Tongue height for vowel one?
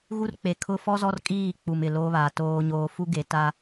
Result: high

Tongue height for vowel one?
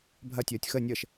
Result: low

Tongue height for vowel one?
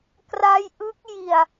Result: low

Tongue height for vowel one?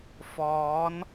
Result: mid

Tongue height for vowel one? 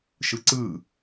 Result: high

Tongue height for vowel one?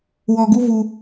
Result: mid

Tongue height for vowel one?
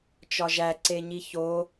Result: low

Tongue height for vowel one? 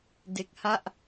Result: mid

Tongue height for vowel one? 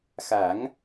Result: low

